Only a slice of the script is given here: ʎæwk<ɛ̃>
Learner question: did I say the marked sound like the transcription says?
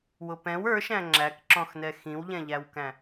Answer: no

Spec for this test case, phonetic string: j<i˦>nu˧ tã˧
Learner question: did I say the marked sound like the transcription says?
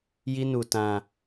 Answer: yes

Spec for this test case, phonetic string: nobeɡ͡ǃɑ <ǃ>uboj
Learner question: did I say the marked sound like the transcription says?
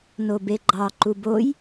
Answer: yes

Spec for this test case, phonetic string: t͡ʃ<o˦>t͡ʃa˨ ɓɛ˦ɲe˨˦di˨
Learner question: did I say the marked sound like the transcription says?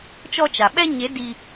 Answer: no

